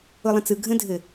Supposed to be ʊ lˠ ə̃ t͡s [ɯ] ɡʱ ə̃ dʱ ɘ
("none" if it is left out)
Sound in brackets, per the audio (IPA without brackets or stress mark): ɯ